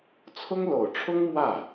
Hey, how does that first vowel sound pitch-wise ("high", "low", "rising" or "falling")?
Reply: high